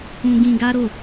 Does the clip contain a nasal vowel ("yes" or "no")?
yes